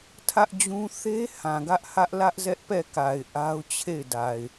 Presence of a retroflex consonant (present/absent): absent